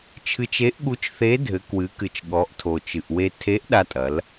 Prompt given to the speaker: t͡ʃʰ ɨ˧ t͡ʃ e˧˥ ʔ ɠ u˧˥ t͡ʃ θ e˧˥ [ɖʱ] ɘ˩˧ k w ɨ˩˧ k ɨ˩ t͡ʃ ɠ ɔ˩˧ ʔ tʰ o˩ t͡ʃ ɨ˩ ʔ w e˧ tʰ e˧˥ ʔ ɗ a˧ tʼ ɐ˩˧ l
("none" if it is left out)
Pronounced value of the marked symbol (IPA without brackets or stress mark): dʱ